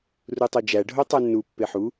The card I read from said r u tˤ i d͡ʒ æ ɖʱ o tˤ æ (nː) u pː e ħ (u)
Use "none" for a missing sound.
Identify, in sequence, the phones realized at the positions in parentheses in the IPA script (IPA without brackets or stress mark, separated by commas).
nː, u